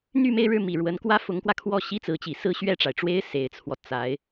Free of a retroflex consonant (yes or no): no